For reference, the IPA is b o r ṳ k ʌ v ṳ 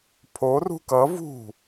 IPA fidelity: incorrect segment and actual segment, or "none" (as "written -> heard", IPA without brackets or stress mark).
b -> pʰ